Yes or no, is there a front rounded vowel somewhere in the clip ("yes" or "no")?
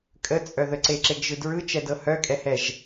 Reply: yes